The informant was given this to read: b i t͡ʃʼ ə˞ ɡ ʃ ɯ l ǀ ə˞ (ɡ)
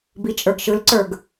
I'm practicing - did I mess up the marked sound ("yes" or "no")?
no